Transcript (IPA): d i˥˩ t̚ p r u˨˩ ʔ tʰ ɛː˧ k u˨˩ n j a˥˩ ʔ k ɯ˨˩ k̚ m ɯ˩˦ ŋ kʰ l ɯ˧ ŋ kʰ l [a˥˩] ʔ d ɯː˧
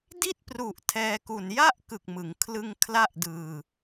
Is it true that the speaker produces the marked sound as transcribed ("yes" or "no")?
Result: yes